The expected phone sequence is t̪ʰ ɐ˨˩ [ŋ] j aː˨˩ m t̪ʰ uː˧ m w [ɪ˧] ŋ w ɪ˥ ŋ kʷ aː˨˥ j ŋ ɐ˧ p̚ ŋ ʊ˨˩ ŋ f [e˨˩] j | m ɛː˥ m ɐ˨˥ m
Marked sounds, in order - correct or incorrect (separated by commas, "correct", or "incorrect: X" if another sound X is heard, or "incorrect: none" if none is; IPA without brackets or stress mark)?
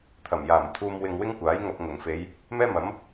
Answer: incorrect: m, correct, incorrect: e˨˧